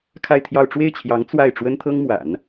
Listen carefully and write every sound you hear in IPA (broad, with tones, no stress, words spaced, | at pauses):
kʰa˥˧ɪ̯t̪ʰjɑ˥˧ʊ̯ ʈ͡ʂwe˥˩ɪ̯t͡ɕʰjɑ˧˥ŋ t͡swa˥˩ɪ̯ ʈ͡ʂwə˥nt̪ʰɤ˥ŋmwa̰˨˩˦n